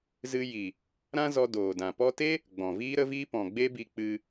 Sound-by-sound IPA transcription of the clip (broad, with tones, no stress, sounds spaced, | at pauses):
z ɨ˧ j i˨ | ɾ ã˦ z ɔ˧ d oː˨ d ã˨ p ɔ˧ t e˦ | ɡ͡b ɔ̃˨ v iː˦ ɾ ə˦ v iː˦ p ɔ̃˨ ɡ͡b e˦ b i˧ k͡p ɨ˧